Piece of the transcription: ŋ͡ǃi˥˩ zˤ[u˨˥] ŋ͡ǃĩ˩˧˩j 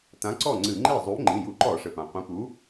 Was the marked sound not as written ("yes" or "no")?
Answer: no